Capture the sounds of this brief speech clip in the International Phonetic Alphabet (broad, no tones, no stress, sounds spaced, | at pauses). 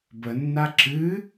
b ə nː a ǁ ɨ